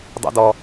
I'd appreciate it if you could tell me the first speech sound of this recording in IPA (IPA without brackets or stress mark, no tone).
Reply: dˤ